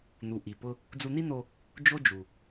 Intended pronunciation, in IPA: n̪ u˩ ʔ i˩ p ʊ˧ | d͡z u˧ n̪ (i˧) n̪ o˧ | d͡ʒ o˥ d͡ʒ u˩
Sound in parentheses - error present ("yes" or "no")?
yes